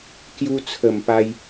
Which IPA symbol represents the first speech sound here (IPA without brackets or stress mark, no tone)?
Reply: k